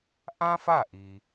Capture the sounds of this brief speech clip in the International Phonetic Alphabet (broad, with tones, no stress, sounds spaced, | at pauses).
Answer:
ʔ ã˥ f a˥˩ ʔ i˩